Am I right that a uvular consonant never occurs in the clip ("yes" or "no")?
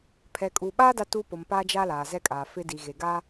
yes